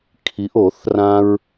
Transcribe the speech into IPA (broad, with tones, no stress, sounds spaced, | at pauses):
kʰ i˨˦ ʔ o˨˩˦ θ r ã˦ ɹ